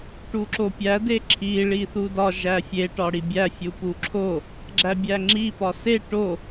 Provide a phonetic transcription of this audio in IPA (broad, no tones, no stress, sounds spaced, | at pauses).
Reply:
ʈ u ǁ o pʲ æ d e ǁʰ i ɭ i θ u d ɒ ʒ æ fʲ e ʈ ɒ ɽ i bʲ æ fʲ u p u ǁʰ o | ɡ͡ǁ æ bʲ æ ŋ͡ǁ i p ɒ s e ʈ o